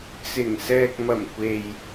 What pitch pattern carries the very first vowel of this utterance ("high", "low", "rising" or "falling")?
low